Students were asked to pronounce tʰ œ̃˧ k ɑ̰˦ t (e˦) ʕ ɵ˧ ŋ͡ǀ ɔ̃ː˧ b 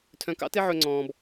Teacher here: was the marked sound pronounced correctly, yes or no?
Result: yes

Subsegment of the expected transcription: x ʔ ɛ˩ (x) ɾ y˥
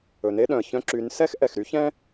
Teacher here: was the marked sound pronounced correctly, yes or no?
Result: yes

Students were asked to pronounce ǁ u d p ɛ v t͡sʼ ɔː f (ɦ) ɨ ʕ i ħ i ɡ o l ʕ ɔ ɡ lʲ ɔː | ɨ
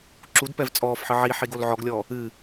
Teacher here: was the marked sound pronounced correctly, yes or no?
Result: no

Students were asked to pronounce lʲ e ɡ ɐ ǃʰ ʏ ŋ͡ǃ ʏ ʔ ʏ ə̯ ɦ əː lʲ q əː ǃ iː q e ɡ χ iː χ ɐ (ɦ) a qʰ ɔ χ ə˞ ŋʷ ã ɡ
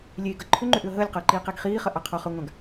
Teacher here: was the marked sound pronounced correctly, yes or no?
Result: no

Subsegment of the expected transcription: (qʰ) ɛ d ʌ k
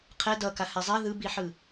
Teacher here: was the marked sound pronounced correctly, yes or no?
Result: yes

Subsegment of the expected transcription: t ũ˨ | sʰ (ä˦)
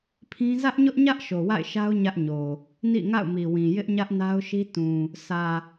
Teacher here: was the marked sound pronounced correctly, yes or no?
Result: no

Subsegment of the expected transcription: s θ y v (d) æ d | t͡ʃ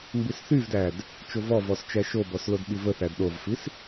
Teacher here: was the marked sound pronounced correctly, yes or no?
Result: yes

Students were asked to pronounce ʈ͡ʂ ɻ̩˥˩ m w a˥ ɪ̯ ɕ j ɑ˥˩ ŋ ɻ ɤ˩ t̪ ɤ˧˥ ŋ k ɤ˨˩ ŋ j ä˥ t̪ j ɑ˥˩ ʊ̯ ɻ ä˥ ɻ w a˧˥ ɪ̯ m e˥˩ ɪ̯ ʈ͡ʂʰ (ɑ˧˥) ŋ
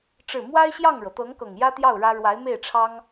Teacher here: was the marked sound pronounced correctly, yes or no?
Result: no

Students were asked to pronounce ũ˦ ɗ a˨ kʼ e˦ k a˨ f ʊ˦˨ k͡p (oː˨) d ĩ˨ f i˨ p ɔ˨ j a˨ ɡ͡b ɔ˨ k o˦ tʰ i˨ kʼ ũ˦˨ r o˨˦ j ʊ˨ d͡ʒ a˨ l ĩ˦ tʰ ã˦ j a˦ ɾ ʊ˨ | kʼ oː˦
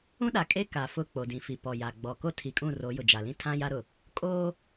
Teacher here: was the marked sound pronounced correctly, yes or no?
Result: no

